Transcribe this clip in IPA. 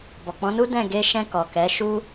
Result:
bɔ˨k͡pɔ̃˨˦nu˦ dɛ̃˦˨ɡe˧ʃɛ̃˧ kɔ˨kɛ˨˦ʃu˦

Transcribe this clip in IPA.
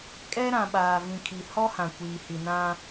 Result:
kʼɛ˦ɾã˨ɓaː˨ vĩ˨kʰi˨ hɔ˦ hã˨kʷiː˨hi˨ nã˦

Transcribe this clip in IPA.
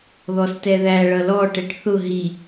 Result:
ðɔstɛðæ ɭʌlɔ ʈɛʈθʊ ɦi

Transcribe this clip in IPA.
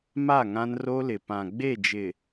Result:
ma˦˨ŋã˦nro˦lɪ˨ pã˨ɡ͡be˦˨ d͡ʒɪ˨

